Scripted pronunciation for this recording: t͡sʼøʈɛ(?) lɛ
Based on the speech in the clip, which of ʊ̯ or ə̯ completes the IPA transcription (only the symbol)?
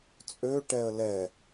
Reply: ə̯